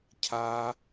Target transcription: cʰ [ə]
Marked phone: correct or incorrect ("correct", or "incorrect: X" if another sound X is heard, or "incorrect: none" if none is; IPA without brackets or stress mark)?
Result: incorrect: a